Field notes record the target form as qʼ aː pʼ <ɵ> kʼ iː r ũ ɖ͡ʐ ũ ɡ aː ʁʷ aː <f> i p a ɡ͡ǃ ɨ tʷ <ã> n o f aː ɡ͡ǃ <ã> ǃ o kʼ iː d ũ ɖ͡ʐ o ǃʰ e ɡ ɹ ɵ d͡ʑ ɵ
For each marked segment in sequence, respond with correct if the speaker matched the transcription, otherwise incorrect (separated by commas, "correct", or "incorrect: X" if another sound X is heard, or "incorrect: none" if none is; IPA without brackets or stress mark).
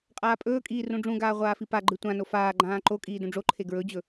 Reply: incorrect: ɵː, correct, correct, incorrect: ãː